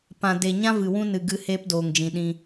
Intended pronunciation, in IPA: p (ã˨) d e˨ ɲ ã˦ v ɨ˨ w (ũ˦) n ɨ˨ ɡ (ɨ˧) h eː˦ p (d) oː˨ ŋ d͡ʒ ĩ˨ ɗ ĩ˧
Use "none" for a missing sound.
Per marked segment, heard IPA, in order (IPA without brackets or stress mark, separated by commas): ã˨, ũ˦, ɨ˧, d